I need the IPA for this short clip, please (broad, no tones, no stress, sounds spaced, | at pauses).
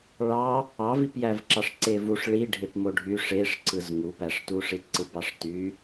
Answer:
ɭ ɑ | ɑ v i p j æ v ǁ ɑ ʂ ǀ e v u ʂ ɭ i ɖʱ e p m o ɖʱ y ʂ e ʂ ǀ ɯ z ŋ u p æ ʂ t u ʂ i t ǀ ɯ b ɑ ʂ t y